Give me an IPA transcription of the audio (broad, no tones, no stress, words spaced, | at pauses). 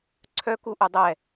ǀʰœkuʔɵ dˤɛ